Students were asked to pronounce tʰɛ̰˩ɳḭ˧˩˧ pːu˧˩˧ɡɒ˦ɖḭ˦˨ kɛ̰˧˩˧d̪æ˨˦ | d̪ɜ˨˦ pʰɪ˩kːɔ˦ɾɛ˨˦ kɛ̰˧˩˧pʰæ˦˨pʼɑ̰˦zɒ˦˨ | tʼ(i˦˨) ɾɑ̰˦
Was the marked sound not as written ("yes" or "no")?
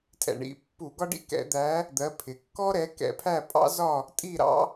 no